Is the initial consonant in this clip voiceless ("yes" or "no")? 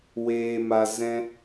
no